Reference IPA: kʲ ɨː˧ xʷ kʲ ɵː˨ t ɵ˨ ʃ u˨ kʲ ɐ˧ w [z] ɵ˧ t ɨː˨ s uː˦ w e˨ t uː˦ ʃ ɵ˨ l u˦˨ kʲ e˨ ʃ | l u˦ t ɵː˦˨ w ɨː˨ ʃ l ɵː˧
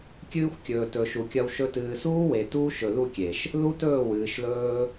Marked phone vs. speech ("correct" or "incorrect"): incorrect